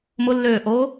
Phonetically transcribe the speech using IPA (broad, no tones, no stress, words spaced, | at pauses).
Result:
mʊlːøːʔoː